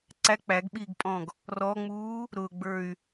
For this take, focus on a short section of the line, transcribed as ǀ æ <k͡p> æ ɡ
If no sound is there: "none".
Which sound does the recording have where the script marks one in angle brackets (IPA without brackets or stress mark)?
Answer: k͡p